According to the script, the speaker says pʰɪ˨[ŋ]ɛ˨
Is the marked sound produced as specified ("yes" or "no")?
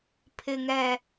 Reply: yes